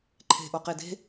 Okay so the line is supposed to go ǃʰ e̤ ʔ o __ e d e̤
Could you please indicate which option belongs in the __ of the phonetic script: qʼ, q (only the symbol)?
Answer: q